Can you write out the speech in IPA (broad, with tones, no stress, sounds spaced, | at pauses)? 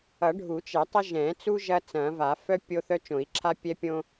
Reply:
ʌ˨˩˦ ɖʱ u˨˩˦ t͡ʃ ɛ˨˩˦ tˤ ɐ˦ ʒ ɛ̃˨˩˦ t͡s u˦ ʒ ɐ˦ t͡s ɐ̃˨˩˦ v a˨˩˦ f œ˦ pʲ o˦ θ œ˦ t͡ʃ õ˨˩˦ i̯ ǁʰ a˦ pʲ ɛ˦ pʲ õ˦